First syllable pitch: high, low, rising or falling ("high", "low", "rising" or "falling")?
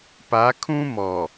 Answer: rising